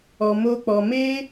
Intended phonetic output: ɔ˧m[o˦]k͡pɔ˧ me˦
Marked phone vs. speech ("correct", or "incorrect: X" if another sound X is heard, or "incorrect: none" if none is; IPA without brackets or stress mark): correct